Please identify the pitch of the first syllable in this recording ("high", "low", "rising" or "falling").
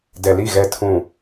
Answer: low